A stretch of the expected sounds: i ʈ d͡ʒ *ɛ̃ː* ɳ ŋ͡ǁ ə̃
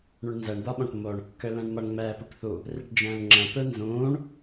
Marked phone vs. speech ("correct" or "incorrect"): correct